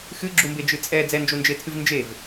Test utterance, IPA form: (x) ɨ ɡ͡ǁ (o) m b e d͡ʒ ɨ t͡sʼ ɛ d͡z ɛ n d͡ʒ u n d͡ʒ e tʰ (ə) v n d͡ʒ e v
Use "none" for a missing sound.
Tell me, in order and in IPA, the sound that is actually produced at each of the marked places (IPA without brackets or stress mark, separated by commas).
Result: x, u, ɨ